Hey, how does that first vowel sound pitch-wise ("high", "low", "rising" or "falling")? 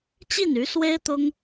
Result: falling